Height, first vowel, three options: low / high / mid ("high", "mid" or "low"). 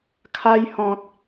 low